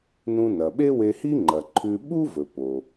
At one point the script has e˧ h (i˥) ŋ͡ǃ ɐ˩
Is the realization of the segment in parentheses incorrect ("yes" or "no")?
no